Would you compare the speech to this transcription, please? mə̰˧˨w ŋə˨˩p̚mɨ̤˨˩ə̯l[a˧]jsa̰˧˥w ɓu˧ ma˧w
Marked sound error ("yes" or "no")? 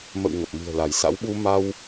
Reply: yes